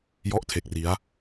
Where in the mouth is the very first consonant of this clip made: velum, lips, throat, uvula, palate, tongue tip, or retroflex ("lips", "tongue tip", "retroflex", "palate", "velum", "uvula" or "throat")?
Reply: palate